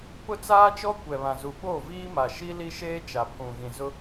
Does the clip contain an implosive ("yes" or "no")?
yes